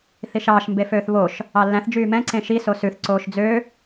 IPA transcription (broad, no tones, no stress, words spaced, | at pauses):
θiʃɑːʃ mbeføːθβoʃ | ɑlːæ̃θ d͡ʒyːmɛ̃ ǀẽʃi sosʉθ ǀoːʃd͡zø